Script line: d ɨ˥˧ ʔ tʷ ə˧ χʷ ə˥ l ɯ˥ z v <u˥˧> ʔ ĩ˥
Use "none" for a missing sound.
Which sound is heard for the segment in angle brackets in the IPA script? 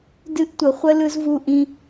u˥˧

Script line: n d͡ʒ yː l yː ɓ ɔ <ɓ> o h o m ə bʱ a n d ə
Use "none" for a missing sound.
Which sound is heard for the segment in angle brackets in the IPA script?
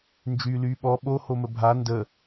ɓ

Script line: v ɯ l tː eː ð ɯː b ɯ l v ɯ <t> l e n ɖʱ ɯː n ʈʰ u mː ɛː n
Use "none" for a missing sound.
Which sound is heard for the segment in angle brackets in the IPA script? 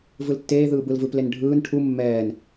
p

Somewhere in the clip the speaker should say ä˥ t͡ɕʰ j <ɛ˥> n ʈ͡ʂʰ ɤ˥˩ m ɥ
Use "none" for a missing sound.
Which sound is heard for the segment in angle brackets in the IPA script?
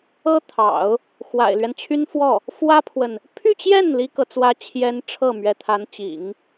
ɛ˥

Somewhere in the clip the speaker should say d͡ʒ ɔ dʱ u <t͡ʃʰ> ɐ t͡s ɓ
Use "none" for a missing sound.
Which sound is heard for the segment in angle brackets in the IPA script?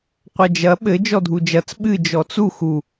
d͡ʒ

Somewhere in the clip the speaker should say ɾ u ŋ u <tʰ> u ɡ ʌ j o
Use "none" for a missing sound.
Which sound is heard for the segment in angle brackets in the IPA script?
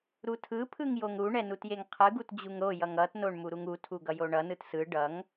tʰ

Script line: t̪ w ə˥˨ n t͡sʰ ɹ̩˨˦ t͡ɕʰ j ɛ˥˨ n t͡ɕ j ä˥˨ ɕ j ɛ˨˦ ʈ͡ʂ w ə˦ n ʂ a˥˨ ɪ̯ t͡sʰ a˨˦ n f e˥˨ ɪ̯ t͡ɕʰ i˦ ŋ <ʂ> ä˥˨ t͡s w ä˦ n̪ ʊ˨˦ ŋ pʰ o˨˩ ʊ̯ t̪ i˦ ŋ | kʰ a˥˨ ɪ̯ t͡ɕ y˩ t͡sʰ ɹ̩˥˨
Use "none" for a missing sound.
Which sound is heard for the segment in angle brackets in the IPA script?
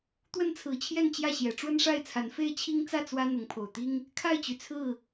t͡s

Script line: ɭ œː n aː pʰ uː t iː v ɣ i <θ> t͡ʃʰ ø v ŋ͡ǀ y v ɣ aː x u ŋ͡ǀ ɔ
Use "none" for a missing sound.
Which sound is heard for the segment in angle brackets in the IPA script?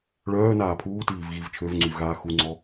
v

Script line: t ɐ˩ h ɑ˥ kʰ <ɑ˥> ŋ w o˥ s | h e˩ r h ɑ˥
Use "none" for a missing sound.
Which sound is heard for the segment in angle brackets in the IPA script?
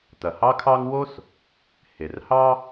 ɑ˥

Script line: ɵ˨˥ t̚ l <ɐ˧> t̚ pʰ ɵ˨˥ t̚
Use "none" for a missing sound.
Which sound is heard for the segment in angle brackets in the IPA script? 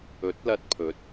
ɐ˧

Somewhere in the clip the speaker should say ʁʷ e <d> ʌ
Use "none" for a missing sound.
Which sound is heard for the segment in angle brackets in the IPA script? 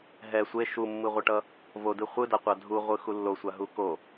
ʈ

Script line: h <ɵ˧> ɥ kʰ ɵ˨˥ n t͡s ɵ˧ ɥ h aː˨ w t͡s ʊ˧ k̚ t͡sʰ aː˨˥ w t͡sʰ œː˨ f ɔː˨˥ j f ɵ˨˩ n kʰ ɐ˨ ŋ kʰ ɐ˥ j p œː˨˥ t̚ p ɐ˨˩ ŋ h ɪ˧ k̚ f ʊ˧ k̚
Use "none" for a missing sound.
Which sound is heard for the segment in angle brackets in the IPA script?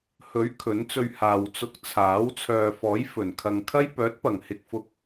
ɵ˨˥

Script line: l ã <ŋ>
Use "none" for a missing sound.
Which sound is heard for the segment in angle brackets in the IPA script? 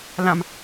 m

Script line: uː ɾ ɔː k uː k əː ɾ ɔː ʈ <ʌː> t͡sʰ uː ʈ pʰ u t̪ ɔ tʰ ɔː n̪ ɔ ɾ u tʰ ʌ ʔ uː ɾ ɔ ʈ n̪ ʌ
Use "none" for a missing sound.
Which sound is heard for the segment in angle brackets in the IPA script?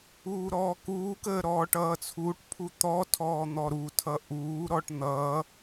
ʌː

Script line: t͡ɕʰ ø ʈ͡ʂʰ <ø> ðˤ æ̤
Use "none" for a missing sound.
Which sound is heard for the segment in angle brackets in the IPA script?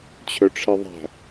e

